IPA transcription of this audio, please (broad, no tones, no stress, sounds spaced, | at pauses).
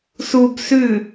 s u b s ʉ